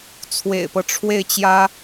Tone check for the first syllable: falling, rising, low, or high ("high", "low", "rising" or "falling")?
low